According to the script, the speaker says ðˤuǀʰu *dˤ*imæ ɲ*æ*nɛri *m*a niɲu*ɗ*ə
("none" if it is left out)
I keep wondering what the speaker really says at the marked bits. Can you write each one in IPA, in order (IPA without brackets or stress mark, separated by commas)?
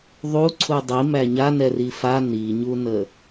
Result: dˤ, a, f, n